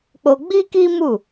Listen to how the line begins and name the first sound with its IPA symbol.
k͡p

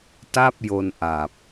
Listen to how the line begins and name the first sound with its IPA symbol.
t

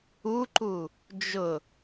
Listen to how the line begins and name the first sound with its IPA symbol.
u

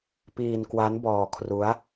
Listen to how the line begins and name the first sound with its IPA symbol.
p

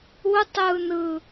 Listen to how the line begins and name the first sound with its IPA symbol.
u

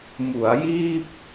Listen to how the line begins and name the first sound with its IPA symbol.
m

